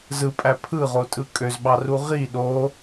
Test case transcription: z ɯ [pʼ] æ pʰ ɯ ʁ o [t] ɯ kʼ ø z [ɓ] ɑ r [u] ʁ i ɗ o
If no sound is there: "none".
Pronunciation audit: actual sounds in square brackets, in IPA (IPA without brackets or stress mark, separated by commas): pʼ, tʼ, ɓ, u